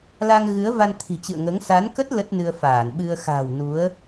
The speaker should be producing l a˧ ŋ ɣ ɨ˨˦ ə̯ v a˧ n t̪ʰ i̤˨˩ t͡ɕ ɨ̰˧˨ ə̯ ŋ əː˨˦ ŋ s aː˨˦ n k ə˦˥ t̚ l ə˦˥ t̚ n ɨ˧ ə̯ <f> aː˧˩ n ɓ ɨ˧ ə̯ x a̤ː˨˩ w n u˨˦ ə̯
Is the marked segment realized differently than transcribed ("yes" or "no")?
no